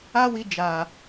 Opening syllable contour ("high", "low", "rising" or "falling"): high